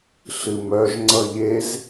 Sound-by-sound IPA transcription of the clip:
ɬ ɨ m œ ʒ ŋ͡ǀ ʌ ʎ e z

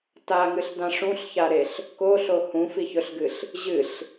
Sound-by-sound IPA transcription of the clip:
t a ŋ ɨ ɬ d ã ʂ ũ ɬ ç a ɾ e ɬ | k o ɬ o h ũ f i ç ɵ ɬ ɡ ɨ ɬ | ʑ ɨ ɬ

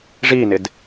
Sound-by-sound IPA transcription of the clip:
ʐ i n ɪ d

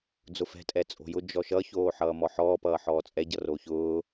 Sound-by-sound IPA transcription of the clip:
d͡z ʊ f ɛ̤ tʼ ɛ t͡sʼ o̤ j ʊ d͡ʒ ɔ ʃ ʌ ç oː ħ ʌː m ɔ ħ ɔː p ʌː ħ ɔː t͡sʼ ɛ ɟ ʌ r o ç ʊː

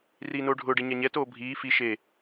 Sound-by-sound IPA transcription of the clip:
r iː n oː ɖʱ ʊː ɖ e ɲ a ɲ ɛ t oː bʱ iː f i ʃ e

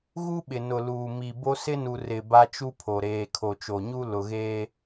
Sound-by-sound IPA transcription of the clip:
ɣ u˦ ɓ ɪ˨ n ʊ˨ l uː˨ m i˨ b o˦ s ɪ˦ n u˨ r ɪ˨ b a˦ t͡ʃ u˦ pʰ o˨ ɾ eː˨ kʰ o˨ t͡ʃ o˨ ɲ u˦ l ʊ˨ ɣ eː˦

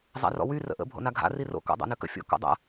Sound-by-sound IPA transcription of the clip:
zˤ a̰ r ɔ̰ w y r ə̰ ʔ ə̰ bʱ o̰ n a ɡʱ a̰ r i r o̰ k ɔ̰ dˤ a̰ n ø k ə̰ fʲ o̰ k ɔ̰ dˤ a̰

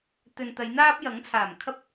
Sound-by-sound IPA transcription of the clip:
t̪ ɵ˨ n t̪ ɐ˨˧ j n̪ aː˥ p̚ j ɐ˨˥ ŋ t͡sʰ aː˨˩ m kʰ ɐ˧ p̚

